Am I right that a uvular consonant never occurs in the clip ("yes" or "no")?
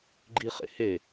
no